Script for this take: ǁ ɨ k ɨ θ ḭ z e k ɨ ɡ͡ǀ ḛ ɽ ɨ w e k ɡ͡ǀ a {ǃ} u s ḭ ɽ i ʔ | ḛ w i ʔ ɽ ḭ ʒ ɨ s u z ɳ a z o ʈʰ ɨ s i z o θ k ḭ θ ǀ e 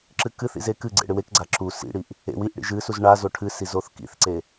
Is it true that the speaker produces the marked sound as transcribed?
no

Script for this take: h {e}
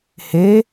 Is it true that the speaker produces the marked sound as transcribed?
yes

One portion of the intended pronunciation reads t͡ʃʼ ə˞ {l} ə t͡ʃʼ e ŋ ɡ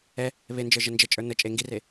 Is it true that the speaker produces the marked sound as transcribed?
no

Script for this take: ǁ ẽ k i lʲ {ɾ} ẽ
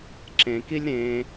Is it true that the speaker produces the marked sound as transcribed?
yes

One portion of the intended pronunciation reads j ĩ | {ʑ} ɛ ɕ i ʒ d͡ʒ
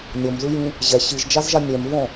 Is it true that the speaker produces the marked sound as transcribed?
yes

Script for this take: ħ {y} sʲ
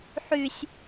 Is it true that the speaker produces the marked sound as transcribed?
yes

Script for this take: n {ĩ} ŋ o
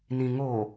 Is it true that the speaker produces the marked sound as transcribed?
yes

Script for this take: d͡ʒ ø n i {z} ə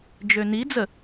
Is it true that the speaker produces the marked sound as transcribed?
no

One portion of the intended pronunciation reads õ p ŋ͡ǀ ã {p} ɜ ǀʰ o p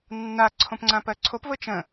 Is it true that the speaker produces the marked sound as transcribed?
yes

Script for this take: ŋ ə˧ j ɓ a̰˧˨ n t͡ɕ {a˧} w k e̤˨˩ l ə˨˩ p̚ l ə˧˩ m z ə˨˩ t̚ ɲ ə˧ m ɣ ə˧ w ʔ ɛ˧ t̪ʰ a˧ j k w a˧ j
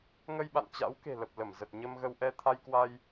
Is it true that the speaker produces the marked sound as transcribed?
no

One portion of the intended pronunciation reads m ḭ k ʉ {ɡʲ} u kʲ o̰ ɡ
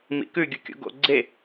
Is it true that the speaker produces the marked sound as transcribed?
yes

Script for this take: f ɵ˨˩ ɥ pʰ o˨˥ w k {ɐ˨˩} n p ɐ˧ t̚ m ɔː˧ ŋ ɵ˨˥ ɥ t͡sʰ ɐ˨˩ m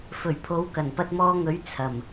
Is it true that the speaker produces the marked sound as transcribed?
yes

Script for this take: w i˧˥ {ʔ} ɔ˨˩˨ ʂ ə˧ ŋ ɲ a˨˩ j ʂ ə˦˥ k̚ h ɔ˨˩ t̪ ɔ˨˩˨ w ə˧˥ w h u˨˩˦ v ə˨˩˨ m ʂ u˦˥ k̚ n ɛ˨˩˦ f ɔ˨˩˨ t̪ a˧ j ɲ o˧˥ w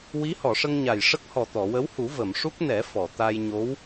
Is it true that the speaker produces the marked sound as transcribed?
no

